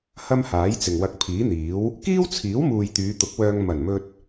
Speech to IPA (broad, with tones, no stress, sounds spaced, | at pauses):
h ɐ˥ m h aː˨˥ j t͡s ɪ˨ ŋ w ɐ˧ k̚ pʰ iː˨˥ n̪ iː˨˥ w | k iː˥ w t͡sʰ iː˨˥ w m uː˨ j t̪ yː˨˧ t̪ ʊ˨˥ k̚ w œː˧ ŋ m ɐ˨˩ n m ɵ˧ t̚